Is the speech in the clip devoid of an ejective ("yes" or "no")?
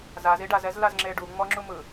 yes